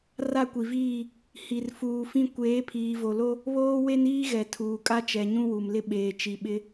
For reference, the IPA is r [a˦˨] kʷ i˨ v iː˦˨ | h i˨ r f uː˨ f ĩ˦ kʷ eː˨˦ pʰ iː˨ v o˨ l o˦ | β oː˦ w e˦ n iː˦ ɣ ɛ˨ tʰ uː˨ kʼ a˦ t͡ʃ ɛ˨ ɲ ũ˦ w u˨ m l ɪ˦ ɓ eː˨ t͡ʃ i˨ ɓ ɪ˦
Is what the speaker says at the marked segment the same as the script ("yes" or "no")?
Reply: yes